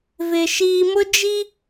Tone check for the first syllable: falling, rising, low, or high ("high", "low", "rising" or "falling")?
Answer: low